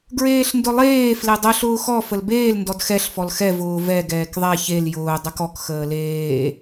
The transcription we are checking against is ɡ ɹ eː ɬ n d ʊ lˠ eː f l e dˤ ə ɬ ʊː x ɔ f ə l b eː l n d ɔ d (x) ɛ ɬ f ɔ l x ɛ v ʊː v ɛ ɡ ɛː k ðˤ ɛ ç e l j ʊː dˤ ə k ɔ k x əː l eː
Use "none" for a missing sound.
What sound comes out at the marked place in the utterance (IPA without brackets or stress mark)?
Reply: x